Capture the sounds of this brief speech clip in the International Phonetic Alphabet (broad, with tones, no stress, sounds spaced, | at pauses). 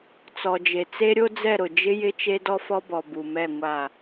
t͡s ɔ˨ d͡ʒ e˨ t͡s e˦ ɾʲ o˦ d͡z ɛ˦˨ ɾ ʊ˨ d͡ʒ ɪ˦ j ɪ˦ t͡ʃ e˦ d ɔ˦ f ɔ˦ b ɔ˨ b u˨ m ɛ˦˨ ŋʷ a˦˨